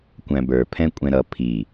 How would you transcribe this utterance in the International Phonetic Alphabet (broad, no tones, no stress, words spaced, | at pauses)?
kʷæ̃bə˞ pʰɛ̃kʷʼɛ̃ɾʌ pʰi